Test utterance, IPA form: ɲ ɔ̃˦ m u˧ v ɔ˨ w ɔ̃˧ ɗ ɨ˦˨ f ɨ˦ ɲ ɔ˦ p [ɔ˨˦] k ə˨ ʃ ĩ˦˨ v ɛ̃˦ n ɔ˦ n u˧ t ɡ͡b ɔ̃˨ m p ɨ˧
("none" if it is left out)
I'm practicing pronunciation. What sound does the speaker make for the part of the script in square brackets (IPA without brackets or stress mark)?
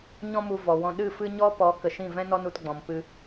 ɔ˨˦